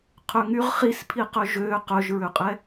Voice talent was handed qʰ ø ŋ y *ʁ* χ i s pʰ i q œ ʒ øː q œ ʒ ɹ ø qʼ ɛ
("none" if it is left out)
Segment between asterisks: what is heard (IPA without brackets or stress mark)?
ʁ